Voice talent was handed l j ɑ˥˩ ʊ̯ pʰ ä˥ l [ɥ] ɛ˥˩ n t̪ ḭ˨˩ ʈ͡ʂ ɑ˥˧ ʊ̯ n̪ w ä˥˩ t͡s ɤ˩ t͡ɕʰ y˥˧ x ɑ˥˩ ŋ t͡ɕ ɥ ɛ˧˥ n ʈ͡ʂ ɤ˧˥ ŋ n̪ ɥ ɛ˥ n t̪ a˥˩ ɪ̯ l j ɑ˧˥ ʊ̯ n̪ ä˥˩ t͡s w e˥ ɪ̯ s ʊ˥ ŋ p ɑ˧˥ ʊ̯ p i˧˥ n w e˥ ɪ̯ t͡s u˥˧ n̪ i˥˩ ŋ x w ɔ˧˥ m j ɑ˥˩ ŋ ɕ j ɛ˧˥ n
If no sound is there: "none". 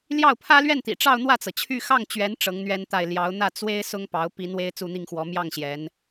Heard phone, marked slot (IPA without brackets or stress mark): ɥ